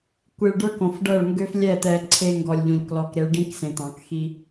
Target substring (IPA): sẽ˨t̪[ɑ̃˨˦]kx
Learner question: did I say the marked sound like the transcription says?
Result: yes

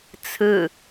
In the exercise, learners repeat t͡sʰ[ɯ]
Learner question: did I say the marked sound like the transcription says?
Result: yes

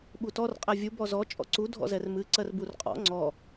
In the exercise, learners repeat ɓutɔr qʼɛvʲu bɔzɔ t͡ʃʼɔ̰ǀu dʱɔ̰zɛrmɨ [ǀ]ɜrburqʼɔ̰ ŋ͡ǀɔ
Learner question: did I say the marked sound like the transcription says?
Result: yes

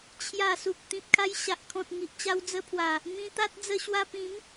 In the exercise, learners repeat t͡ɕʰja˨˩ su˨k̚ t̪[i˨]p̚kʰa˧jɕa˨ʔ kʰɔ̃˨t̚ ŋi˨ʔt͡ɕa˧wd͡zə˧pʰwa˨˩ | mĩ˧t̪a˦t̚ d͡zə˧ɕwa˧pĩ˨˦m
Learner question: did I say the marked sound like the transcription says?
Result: no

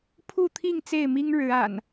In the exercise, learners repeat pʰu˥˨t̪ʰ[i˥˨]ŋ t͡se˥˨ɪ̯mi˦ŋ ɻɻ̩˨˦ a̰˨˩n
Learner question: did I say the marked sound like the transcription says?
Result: yes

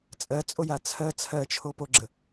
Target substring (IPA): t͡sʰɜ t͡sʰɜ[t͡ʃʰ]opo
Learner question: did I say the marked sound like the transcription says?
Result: yes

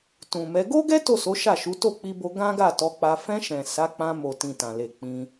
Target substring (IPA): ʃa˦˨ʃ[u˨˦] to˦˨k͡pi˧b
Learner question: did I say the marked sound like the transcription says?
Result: yes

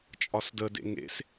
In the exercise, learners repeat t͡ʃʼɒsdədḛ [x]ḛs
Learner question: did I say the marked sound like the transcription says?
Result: no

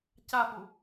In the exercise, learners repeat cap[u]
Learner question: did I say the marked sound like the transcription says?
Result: yes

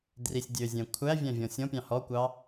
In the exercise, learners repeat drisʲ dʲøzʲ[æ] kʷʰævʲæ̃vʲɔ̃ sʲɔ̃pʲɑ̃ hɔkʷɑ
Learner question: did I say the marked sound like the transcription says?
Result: no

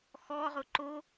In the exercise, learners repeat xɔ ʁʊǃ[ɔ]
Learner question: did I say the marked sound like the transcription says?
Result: no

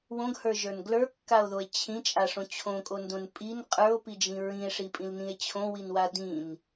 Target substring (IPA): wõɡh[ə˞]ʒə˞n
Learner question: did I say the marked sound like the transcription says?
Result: yes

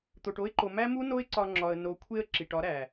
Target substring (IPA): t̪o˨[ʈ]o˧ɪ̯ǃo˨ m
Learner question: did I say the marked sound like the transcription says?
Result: yes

